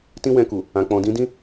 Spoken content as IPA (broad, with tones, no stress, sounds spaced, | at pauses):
t ĩ˦ w ɛ̃˧ k u˨ | ã˨ k͡p ɔ̃˨ d ĩ˨˦ d ĩ˦